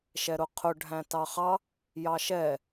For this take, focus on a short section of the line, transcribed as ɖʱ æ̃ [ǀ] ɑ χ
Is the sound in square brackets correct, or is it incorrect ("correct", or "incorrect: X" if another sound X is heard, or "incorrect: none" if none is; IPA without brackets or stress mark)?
incorrect: t